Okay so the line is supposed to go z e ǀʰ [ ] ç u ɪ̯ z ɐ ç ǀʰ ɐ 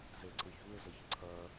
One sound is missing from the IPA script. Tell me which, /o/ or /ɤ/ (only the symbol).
ɤ